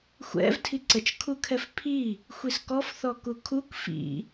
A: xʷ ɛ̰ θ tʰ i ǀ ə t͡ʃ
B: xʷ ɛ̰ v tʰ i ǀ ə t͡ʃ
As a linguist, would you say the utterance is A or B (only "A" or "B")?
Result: B